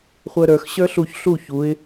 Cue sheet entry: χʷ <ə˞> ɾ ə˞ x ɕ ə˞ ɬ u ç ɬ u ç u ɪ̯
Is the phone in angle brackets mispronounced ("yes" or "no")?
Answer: no